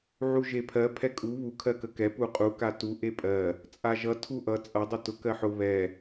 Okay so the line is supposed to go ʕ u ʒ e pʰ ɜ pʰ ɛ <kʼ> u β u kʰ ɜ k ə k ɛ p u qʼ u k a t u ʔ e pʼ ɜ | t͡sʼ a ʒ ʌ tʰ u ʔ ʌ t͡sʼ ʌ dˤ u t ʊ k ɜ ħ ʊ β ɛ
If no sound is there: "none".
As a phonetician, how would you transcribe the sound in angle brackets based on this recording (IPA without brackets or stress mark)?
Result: kʼ